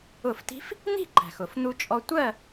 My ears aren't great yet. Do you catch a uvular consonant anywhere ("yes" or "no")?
no